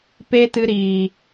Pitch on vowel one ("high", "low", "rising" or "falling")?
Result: high